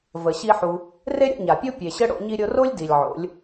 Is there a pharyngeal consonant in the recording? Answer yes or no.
yes